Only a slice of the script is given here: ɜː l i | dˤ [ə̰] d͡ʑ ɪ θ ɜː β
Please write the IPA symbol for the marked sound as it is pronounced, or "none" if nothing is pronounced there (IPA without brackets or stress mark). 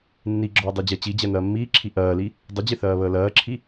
ə